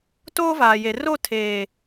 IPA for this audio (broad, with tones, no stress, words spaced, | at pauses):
toː˦vaː˨ je˨ ro˦˨ tʰeː˨